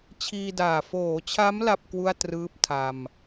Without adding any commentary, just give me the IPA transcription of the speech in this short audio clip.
t͡ɕʰiː˧daː˨˩ foː˩˦t͡ɕʰa˦˥m la˥˩p̚kwu˥˩a̯trɯː˦˥p̚ tʰa˧m

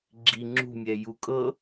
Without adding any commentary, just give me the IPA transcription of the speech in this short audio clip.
ɡ͡ǁi ŋ͡ǁṳmʲɛ jukʼɤ

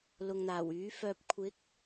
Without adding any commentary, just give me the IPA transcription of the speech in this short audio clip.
lʊ˨ŋn̪aː˨˩w yː˨˥fœː˧p̚ kʷʰɪ˨˥k̚

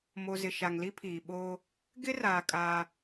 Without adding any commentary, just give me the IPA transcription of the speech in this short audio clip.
mo˨zɪ˨ ʃa˨ŋli˦pʰiː˨ ɓoː˦ | ɡɪ˦raː˨ kʼaː˦

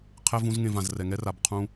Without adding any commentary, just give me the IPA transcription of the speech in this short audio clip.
qʰɛ˦vũ˦zŋẽ˧vã˨z rɛ˨ŋɛ˦ra˨b qʰũ˧

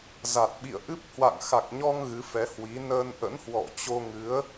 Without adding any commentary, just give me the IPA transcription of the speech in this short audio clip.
za˨˩t̚ɓḭ˧˨ə̯ʔɨ˦˥p̚ hwa̰˧˨ŋxa˨˩k̚ɲɔ˧ŋ ɣɨ˨˦fɛ˨˦hwi˨˦ nəː˧nʔə̰˧˥nhwɔ̰˧˨t͡ɕo˧ ŋɨ˨˦ə̯

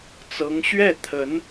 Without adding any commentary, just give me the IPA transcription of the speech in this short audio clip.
t͡sɤ˧˥ŋ ɕɥɛ˥˩t̪ʰə˧˥n

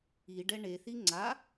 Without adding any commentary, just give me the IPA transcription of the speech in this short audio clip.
iɖɛ ɳeθi ŋ͡ǀa

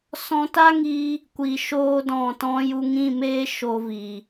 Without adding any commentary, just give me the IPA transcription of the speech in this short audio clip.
sɔ̃˧ta˦ ŋi˦ | kʷi˨ ʃoː˧dɔ̃˨tɔ̃˧ju˧ ŋĩ˦˨meː˦ ʃo˧vi˨

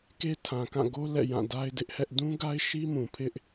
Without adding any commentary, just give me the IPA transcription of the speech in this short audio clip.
ke˦tʰã˨kã˦˨ɡo˦ lɛ̰˦˨jã˦˨da˦ɪ̯ dɪ˦ʔhɛ˦ʔ dũ˦ɡa˦ɪ̯ʃi˦mũ˨ pʰɪ˦ʔ

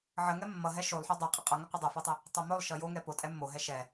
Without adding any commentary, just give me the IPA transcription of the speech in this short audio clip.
ʕəŋɛ mːʌɦɛ ʃolˠħo dˤɛ qʼəqʼʌŋə qʷʌdˤʌfotˤə | tˤomolˠʃʌ jo ŋɛpo tʼɛmːoɦɛ ʃɛ

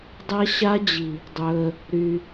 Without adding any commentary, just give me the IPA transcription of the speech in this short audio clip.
dˤa˦ɕa˦d͡ʑi˨ | dˤɵ˧ə̯ | ɾy˧

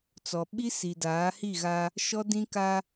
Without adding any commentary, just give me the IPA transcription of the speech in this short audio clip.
t͡sɔ˨ɓi˦ si˨daː˨˦hi˦˨ɣa˦ | ʃɔ˦dĩ˦ka˦

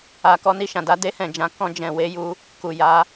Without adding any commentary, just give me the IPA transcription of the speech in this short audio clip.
a˨ kɔ˧ni˧ʃã˨da˧ de˧hɛ̃˨d͡ʒã˨ kɔ̃˧ d͡ʒɛ̃˨ we˧ju˧ | ku˨ ja˨˦

